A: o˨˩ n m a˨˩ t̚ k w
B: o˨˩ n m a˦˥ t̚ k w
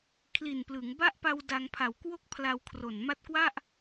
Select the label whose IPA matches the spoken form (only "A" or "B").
B